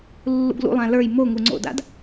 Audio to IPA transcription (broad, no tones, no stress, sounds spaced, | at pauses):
lː ṵ ɡ l ṵ lˠ ã l ə˞ j m o ŋ u ŋ͡ǀ o̰ d a̰ d